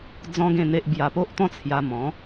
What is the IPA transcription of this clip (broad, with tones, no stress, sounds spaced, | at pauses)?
d͡z ɔ̃˦ ɡ ẽ˥˧ n̪ e˦ ʔ b j a˧ p o˦ ʔ t̪ ɔ̃˦ t͡sʰ j a˧ m ɔ̃˨˦